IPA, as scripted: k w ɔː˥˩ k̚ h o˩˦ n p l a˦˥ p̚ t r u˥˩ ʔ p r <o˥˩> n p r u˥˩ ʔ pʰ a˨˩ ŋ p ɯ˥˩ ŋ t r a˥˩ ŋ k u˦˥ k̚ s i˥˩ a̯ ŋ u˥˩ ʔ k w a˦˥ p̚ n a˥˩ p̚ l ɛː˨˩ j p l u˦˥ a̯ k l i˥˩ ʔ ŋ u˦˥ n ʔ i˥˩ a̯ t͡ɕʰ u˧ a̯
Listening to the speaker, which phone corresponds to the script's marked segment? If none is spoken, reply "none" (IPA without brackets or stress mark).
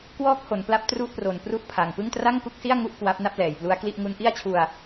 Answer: o˨˩